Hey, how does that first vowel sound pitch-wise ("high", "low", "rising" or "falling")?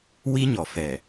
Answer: high